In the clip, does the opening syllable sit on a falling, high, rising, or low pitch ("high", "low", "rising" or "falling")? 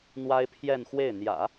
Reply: high